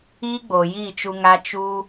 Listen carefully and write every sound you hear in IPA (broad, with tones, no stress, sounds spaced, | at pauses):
iː˦ ɡ͡b oː˨ j iː˦˨ t͡ʃ u˧ ŋ a˦ t͡ʃ u˦